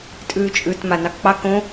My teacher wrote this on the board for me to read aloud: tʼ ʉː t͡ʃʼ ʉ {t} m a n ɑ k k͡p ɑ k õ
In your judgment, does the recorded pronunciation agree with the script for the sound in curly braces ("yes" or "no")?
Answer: yes